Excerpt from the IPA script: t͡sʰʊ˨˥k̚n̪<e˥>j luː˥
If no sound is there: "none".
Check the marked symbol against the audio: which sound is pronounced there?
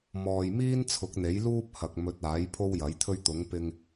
e˨˥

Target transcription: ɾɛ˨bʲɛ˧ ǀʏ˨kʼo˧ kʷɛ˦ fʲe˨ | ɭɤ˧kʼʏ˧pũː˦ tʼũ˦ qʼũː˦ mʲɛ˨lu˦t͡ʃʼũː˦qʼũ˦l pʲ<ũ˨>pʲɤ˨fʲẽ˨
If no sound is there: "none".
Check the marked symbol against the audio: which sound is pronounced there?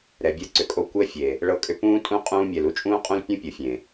ũ˦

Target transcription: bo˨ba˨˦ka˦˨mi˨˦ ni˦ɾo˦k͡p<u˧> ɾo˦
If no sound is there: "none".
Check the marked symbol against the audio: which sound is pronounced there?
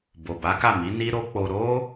o˧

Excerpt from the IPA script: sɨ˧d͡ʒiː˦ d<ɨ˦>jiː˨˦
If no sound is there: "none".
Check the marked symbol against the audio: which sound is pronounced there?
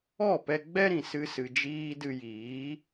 ɨ˧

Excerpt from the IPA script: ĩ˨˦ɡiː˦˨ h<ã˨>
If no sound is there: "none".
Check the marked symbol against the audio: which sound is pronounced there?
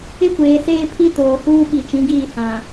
ã˨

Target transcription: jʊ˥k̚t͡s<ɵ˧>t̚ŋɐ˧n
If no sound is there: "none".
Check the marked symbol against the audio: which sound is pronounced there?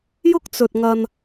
ɵ˧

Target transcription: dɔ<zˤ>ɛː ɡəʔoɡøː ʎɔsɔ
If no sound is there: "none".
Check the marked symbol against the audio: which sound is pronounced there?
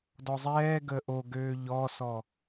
zˤ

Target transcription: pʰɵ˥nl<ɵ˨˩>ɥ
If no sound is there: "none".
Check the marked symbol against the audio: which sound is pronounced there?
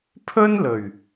ɵ˨˩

